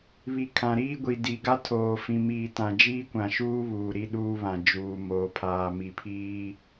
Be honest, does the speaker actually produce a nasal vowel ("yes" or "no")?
yes